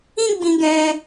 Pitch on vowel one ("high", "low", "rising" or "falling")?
high